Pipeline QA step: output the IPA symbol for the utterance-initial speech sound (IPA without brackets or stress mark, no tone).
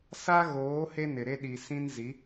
s